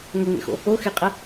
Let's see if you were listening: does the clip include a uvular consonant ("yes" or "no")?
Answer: yes